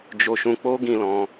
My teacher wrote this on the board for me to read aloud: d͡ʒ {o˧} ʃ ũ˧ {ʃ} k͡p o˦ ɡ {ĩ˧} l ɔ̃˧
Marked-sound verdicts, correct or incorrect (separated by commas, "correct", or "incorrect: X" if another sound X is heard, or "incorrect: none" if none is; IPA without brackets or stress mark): correct, incorrect: none, correct